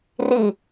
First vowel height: high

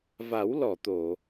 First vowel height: low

